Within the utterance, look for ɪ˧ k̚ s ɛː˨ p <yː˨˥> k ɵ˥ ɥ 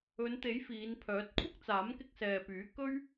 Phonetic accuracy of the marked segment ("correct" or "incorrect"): correct